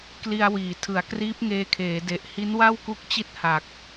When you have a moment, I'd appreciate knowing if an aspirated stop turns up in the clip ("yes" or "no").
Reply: yes